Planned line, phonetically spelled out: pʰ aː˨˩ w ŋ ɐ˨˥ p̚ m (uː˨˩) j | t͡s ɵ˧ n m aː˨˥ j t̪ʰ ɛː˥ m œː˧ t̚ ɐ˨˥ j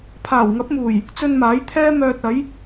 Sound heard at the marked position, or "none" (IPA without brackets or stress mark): uː˨˩